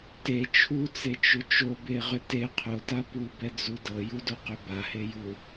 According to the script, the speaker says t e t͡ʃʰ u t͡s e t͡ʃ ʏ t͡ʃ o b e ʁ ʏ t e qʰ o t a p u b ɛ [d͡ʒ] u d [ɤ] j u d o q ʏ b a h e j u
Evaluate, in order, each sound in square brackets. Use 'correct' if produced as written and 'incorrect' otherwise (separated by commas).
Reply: incorrect, correct